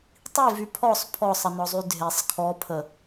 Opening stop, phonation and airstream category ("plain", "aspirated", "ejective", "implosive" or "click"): plain